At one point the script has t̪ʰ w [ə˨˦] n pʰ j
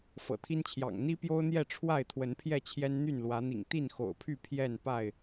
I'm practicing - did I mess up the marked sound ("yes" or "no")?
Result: no